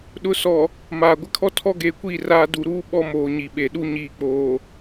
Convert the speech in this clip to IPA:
ɗʊ˨˦ sɔ˨ | maː˨ ɡʷɪ˦kʰɔ˦ tʰɔ˦ɡeː˨kʷiː˦˨ raː˦ du˨ɾuː˦ ɓɔ˦moː˨ɲi˨ɓe˨ ɗu˦ɲiː˨k͡poː˨

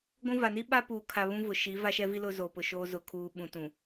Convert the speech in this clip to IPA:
ɡʷũ˦va˨ ni˦ɓa˦ puː˨kʰa˨ βũ˦vʊ˨ ʃi˨˦va˦ʃɛ˦vi˦ lʊ˦zo˨pʊ˨ʃoː˦ zʊ˨kʰuː˨ɓũ˨tũ˨

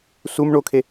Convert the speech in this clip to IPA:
sum ɳokʰe

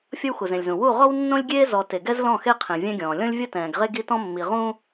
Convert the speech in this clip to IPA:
fʲʌ˦wxu˨zẽ˨lʲzũ˨ wu˦˨ʁɔ˦wnːõ˦lʲɡʲeː˦ zɔ˨ te˨ɡɛ˦zlɔ̃˦˨xe˦ qʰẽ˨vʲɛ̃˦ɡʲɔ̃ː˨ lʲɔ̃˦lʲvʲʌ˦tɛ̃ː˨ɡʁe˦ ɡi˦tɔ̃˦mːi˨ ʁũ˦

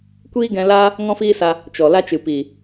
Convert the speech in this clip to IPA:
kʷiː˦ɡɛ̃˧laː˦ | ŋɔ̃˦fiː˦sa˧ | t͡ʃɔ˨ la˧t͡ʃɨ˨ piː˨

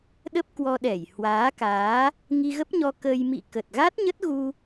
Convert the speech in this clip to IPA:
ɗə˦˥p̚ kwɔ˧ɗɛ˧˩j hwaː˨˦kaː˨˦ | ŋi˧ɣə˦˥p̚ɲɔ˧ kə˧j mḭ˧˨kə˨˩t̚ɣa˦˥t̚ ɲə˦˥t̚ɣu˧

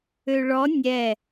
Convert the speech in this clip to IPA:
øɭɔ nʲɛ

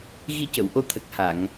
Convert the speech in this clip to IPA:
ɣi˧cə˨˩˨wʔo˧t̪ʰə˨˩k̚ ha˨˩˨ŋ

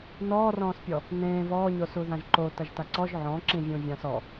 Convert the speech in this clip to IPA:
nɔːrɔ̃ːspʲɔ | nẽː vɔːɲosu ðãʒǃo tɐʒtaǀɔʒ ʕɔ̃ǁĩvʲũ vʲãsɔ

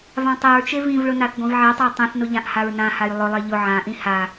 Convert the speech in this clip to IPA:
vãtˤeɹt͡ʃe vĩvɭʊ naθɡʷĩvʕetˤʊi̯ tˤĩθnʊ ʎãʔhaɹnãhaj lˠʊlˠe ʎʊ ʕãʔĩ ha

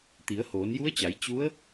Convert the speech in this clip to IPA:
t̪i˩˧ə̯hoː˩˧nju˧˥ə̯t͡ɕa˩˧j t͡ɕu˧˥ə̯

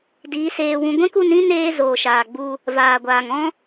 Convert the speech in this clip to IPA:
diː˨˦seː˧wũ˧ ɡʷɛ̃˦ku˧nĩ˦ neː˧ zoː˨ʃaː˨ ɡ͡bu˧ | vaː˨ɡʷaː˨ŋɔ̃˦

